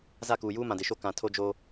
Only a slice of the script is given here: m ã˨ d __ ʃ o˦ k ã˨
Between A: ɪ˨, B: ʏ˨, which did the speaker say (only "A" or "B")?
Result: A